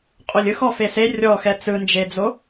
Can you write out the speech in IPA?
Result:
qʼolʲɯx ɔfese rʲɔxɛ t͡sɯnd͡ʒed͡zo

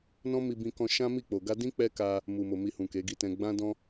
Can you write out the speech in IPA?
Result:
nɔ̃˦mi˧bĩ˧kɔ̃˧ ʃã˦mi˦˨k͡po˨ ɡa˧dĩ˦ k͡pɛ˦ka˧ | mu˨mo˨ mi˧hũ˨ke˨˦ɡi˦˨ tɛ̃˧ ɡ͡bã˦dɔ̃˦

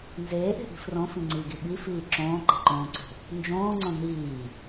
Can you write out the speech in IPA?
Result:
nzeːʔe̤ʔi̤ frõfĩŋ͡ǀiːɡi ɓifiː ǁõːǃe̤ǃõːǀo̤ | nd͡ʒõːŋ͡ǀõ niː

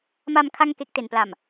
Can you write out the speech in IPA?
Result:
ma˧m kʰa˥˩ŋke˦˥k̚te˨˩npla˨˩m

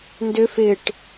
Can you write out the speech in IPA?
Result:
ndʏ fɪʈ

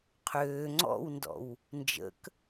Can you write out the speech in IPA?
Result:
qʰøː ŋ͡ǀɔ̰wndɔ̰w | nd͡ʒə̰k

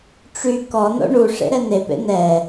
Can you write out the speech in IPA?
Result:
ʈ͡ʂy kɔno̰ ɳu ʂḛɾɛnepḛ nɛ

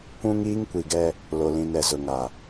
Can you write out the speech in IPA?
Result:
kʷũ˦ŋiː˦ŋkʷi˨ɡɛ˦ | lo˨lĩ˨n ɛ˨zʊ˨ŋa˨

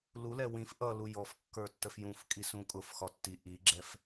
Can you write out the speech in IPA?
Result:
lulɛ wĩf ʔʌ lujɔfkːə˞tːəf jũf kʼisũkʼʊf xɒtːi ʔiɡ͡ǁɛf

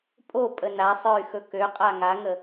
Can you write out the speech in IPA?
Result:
pʼopʼə nasˤə˞y̯xɵ køqʼa ŋaŋə

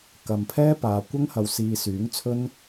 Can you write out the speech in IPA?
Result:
kɐ˨mpʰɛː˥paː˨ kʷɐ˥ŋhɐ˨wsiː˨ syː˨˥ŋt͡sʰɵ˥n

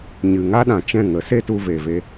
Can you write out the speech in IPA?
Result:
ɲɨ˨ ŋa˦ɗã˨t͡ʃɛ̃˦˨ ŋə˨˦se˦tu˧ve˨ ve˦

